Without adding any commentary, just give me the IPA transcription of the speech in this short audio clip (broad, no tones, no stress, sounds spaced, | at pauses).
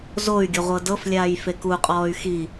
z o y̯ ɡʲ ɔ ʁʷ ɤ d ɤ f lʲ aː j f e k u qʼ ɔː y̯ x i